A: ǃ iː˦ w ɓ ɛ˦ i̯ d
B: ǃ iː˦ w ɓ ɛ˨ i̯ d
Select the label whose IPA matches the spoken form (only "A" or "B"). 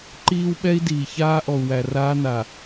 A